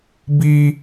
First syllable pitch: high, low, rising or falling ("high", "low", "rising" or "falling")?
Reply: high